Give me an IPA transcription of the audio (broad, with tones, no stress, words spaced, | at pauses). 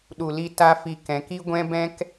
ɗu˨li˧ ta˦fi˧ kɛ̃˨˦k i˦ɡʷɛ̃˦bɛ̃˦k